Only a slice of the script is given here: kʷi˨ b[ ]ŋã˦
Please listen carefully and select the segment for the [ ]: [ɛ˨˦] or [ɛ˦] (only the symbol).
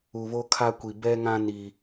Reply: ɛ˦